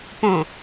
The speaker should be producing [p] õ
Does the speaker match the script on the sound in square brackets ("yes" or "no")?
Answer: yes